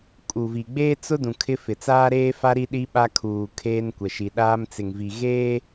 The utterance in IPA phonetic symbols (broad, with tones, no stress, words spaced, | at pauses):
kʼu˨vi˨ ɡ͡beː˦ t͡sʊ˦ dũ˨ kʰɪ˦ fɪ˨ t͡saː˦ɾeː˦fa˦ ɾi˦ɗi˦ɓa˦ kʰuː˨ kʰeː˦nkʷɛ˨ ʃi˨ɗaː˦mt͡sɪ˨ŋvi˨ ɣeː˦